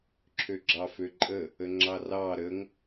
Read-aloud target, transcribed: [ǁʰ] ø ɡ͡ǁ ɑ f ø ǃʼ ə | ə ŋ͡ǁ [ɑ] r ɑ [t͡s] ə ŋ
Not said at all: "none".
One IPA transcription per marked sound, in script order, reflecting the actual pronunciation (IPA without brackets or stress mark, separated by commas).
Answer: ǁʰ, ɑ, ɾ